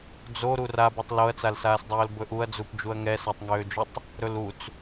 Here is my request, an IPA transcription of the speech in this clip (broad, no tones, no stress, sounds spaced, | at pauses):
d͡z o ɾ u r a b u tˤ l o ɐ̯ t͡s a l s aː s dˤ oː l b ɵ ʔ u ɐ̯ d͡z u p d͡ʒ u ɐ̯ ŋ ɛ s a tˤ ŋ øː d͡ʒ ø tˤ | ɾ ɵ l u t͡s